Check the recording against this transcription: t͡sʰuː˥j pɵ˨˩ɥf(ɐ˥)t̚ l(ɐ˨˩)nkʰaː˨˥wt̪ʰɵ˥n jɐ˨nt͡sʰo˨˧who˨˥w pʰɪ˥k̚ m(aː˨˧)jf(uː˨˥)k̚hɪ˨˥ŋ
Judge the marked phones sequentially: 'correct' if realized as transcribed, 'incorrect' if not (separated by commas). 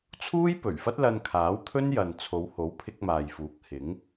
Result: correct, incorrect, incorrect, correct